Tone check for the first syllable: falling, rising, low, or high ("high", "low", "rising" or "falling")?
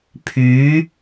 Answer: rising